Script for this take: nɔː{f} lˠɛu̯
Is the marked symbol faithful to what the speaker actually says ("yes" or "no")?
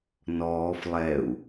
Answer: yes